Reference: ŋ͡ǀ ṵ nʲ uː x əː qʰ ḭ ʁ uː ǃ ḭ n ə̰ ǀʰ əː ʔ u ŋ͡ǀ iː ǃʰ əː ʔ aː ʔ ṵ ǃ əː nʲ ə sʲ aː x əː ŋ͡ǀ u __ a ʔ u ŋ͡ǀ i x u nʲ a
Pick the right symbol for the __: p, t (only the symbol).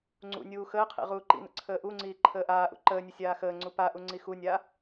p